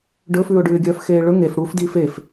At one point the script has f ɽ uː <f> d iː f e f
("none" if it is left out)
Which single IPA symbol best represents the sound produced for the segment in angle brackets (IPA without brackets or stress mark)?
f